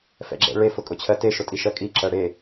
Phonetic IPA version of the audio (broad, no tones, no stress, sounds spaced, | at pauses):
f ɛ̰ ɡ͡ǁ ɛ̰ ɭ e f ʊ kʼ ʊ t͡ɕʰ ɜ t e ʃ ʊ tʼ i ʃ ɜ kʼ i ǁ ɜ ɽ e